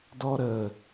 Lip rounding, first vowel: rounded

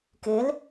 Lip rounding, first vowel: unrounded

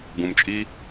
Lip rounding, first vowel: rounded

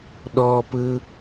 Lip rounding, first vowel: rounded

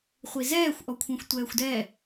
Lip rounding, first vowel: unrounded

